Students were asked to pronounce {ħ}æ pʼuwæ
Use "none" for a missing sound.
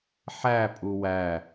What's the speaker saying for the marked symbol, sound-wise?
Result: ħ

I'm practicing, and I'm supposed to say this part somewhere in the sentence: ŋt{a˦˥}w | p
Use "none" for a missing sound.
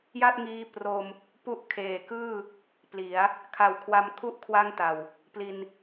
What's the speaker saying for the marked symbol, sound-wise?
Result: a˨˩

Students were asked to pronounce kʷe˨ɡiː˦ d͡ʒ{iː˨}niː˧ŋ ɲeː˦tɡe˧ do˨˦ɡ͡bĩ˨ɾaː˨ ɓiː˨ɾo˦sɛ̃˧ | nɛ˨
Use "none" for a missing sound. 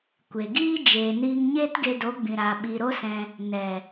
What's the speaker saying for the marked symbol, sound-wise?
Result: eː˨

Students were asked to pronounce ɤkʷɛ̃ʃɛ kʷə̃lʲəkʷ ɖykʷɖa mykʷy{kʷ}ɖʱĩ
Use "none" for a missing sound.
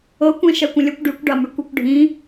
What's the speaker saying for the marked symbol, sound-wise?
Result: kʷ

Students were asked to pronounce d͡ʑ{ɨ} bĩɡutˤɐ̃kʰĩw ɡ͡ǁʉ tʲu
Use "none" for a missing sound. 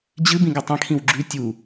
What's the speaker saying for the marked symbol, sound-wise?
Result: ɨ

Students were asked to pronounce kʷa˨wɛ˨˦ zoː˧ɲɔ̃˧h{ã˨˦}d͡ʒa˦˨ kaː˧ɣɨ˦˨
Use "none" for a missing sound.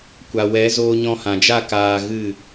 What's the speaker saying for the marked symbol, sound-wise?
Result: ã˨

